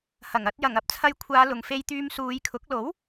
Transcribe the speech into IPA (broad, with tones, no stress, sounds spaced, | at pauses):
h ɐ˨˩ ŋ ɐ˧ t̚ j ɐ˨˩ ŋ ɐ˨ p̚ t͡sʰ ɐ˧ j kʷʰ aː˨˧ l ʊ˨ ŋ f e˧ j t̪ yː˧ m s uː˨˧ j kʰ ʊ˨˥ k̚ l o˨˥ w